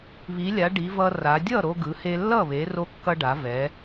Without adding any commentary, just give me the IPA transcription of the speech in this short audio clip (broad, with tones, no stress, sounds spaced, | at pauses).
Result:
β i˩˧ lʲ a˩˧ ɖ i˩˧ v ʌ˧ r a˩˧ dʲ ʌ˥˩ ɾ o˧ ɡ ɯ˩˧ h e˧ lː ʌ˥˩ β e˩˧ r o˧ kː ʌ˧ ɖ a˩˧ v ɛ˩˧